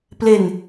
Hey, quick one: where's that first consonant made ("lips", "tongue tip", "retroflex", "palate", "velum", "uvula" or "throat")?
lips